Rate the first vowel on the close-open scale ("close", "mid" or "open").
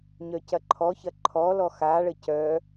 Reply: mid